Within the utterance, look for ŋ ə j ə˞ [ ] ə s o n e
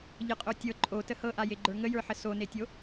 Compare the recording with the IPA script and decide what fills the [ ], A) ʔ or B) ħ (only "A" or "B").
B